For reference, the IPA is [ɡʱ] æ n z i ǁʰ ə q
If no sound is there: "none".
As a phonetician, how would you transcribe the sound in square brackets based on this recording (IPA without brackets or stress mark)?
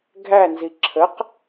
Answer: ɡʱ